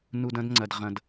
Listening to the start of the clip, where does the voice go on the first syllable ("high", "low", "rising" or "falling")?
low